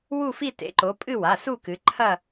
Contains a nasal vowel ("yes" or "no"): no